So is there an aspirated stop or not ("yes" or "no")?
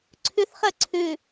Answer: yes